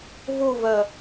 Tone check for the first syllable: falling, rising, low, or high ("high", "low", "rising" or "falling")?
falling